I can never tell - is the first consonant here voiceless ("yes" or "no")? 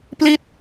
yes